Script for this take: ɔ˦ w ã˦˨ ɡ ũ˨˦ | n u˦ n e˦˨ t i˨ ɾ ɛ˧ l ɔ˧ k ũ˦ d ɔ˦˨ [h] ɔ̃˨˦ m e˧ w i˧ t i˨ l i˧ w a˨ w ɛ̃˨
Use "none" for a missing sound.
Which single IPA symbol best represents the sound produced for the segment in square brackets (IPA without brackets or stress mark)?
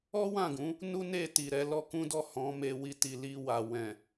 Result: h